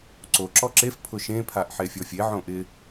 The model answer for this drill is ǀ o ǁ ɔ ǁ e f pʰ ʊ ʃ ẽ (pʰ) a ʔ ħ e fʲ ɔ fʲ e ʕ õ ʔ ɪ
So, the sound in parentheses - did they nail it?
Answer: yes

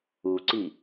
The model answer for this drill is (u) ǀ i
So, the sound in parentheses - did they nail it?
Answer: yes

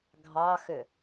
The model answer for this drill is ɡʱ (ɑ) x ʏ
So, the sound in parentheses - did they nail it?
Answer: yes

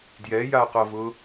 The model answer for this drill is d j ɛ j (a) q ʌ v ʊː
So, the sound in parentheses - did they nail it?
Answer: yes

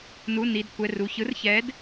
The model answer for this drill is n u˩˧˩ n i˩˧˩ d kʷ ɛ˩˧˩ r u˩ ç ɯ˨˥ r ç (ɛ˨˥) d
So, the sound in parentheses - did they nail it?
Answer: yes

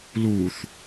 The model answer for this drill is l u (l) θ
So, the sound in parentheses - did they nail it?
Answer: no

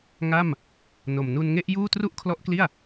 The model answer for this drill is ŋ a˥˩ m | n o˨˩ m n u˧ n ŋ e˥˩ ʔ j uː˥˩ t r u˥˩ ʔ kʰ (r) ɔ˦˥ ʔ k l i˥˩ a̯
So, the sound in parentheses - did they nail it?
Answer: no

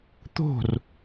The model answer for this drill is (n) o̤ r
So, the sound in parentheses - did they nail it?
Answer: no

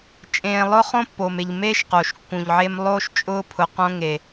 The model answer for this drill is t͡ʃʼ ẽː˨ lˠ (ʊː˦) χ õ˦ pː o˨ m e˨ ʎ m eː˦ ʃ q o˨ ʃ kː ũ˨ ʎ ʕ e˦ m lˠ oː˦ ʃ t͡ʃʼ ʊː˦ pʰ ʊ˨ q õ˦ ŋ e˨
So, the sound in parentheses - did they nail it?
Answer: no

